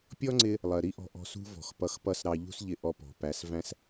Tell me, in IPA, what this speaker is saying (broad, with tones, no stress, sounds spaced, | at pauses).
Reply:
pʲ ɔ˦ ŋ͡ǀ ɪ˧ | lˠ ɜ˨ ɾ i˦ ʔ ɔ̤˧ ʔ ɔ̤˧ s ṳ˦ v ɔ̤˨ x p ʌ˧ x p ʌ˦ s ɾ ɑ˧ ʎ ṳ˦ s ʎ ɪ˧ ʔ ɔ˧ p ɔ̤˨ p æ˨˦ s v æ̃˦ s